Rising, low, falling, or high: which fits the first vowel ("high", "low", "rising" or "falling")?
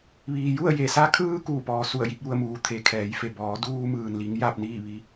low